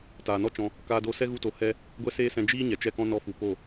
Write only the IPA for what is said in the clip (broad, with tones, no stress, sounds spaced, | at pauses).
t aː˨ n ɔ˦ t͡ʃ ɔ̃˧ | k aː˧ d o˧ s ɛ˦ ɣ u˧ t o˨˦ h ɛ˦ | ɡʷ ɛ˦ s eː˦ s ɛ̃˧ d͡ʒ iː˦ ɲ ɛ˨ t͡ʃ ɛ˦ k ɔ̃˦ n ɔ˧ f u˨ p o˦˨